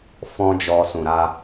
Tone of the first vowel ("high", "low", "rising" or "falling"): high